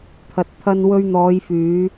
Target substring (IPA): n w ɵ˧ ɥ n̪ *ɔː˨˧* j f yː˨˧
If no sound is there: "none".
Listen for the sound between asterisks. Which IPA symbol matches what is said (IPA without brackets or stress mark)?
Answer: ɔː˨˧